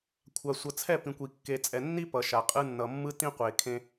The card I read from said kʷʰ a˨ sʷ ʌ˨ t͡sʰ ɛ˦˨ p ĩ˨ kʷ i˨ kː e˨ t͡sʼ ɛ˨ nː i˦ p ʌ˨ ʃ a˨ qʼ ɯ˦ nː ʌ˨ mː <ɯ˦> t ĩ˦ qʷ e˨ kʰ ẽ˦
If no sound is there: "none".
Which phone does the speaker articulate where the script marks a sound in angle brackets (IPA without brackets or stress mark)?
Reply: ɯ˦